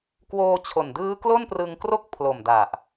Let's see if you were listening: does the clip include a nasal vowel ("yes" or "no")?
no